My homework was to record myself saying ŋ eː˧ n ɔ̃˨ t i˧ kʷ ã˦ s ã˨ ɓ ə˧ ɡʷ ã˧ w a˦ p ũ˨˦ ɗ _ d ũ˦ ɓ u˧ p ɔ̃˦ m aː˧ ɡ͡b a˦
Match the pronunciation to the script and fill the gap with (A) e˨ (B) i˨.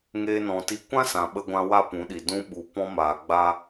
B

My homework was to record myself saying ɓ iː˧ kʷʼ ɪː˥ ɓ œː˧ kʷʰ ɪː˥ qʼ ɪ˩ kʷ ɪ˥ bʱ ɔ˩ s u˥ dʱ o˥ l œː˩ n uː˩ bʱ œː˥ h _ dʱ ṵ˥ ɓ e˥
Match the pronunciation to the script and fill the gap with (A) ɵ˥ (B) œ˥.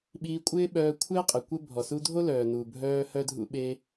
B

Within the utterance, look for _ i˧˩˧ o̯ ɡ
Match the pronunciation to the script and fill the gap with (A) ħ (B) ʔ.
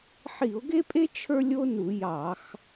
A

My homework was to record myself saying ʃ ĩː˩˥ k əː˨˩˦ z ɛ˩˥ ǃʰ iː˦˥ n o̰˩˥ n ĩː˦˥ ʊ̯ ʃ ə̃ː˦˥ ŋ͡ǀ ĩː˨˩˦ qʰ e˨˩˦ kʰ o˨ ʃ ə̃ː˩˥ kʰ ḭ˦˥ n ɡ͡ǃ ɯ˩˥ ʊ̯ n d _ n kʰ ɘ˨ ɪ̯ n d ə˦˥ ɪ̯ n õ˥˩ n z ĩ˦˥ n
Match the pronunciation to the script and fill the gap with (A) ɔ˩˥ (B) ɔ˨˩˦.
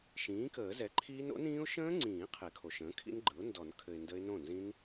B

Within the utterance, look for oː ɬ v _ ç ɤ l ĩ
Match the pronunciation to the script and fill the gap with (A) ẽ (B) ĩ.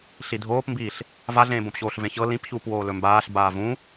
A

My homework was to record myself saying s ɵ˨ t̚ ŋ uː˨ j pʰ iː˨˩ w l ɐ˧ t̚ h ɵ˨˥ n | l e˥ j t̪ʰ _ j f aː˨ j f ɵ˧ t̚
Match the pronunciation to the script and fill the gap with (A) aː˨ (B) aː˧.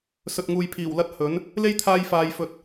B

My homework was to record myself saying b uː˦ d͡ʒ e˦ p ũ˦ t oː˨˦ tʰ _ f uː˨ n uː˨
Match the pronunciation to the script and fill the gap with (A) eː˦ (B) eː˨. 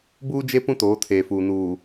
B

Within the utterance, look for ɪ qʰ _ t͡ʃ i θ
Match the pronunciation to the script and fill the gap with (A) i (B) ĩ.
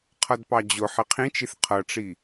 B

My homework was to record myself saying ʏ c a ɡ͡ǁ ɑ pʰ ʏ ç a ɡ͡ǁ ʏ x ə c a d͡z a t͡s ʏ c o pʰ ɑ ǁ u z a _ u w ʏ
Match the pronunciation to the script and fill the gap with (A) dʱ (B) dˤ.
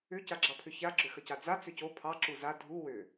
A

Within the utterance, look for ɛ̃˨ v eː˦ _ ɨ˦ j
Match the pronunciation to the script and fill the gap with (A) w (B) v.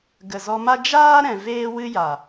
A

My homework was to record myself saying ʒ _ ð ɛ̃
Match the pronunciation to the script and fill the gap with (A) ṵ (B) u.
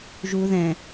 B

